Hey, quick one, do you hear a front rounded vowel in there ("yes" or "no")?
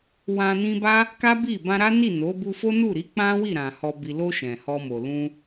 no